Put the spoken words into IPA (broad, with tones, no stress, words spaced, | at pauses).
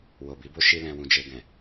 wo˨bi˨˦bo˦ ʃi˦lɛ̃˧wũ˧ d͡ʒe˧ɡɛ̃˨